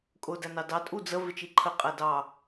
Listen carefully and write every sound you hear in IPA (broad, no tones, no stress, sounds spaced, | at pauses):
kʼ ʊ d æ n ɑ d ɑ tʼ u d͡z ə v ɪ t͡ʃ i ǃʰ ə qʼ æ d ɑ